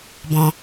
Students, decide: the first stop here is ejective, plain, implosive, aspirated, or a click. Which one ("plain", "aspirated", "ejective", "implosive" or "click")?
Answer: plain